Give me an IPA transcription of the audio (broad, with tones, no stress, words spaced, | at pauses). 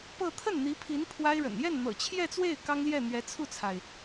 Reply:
pɤ˥˧ t̪ʰə˥˩nn̪i˧˥pʰi˧˥n pʰwa˥ɪ̯ɻə̰˨˩n jɛ˥˩n n̪ɤ̰˨˩t͡ɕʰjɛ˥˧t͡swe˥˩ɪ̯ kɑ˥ŋljɛ˥˩ n̪ɥɛ˧˥t͡sʰu˥˩t͡sʰa˩ɪ̯